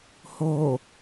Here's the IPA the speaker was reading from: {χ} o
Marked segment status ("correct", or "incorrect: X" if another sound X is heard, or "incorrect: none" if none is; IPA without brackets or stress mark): incorrect: h